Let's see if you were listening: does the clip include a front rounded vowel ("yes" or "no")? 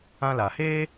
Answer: no